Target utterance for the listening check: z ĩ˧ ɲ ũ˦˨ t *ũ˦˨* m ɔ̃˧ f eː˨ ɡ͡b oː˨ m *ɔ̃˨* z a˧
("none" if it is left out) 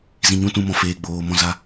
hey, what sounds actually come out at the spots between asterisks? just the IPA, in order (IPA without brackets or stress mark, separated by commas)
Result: ũ˦˨, ɔ̃˧